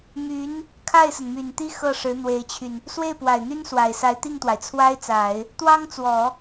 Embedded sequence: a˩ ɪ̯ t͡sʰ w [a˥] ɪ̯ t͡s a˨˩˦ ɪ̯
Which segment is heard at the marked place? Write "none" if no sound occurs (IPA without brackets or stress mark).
a˥